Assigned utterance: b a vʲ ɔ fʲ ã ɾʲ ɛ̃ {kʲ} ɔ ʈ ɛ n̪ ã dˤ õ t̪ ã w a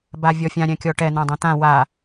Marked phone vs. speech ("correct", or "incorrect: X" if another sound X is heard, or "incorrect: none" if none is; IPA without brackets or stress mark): correct